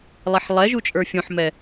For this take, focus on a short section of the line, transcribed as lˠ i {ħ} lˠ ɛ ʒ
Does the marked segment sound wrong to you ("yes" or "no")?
no